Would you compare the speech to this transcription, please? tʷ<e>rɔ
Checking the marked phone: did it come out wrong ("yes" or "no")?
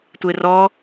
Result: no